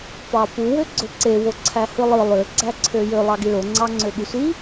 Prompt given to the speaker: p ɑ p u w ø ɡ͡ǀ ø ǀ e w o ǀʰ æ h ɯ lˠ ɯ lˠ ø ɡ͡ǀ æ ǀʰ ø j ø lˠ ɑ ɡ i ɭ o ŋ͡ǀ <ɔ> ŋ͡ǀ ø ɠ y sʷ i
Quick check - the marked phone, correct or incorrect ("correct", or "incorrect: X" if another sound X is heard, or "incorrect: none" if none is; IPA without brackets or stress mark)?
incorrect: ɑ